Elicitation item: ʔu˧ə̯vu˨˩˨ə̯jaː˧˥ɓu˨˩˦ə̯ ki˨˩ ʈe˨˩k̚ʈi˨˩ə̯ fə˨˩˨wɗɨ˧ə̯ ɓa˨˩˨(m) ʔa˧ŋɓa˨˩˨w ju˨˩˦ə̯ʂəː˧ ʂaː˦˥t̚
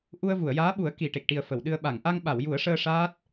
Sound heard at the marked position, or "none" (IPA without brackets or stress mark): ŋ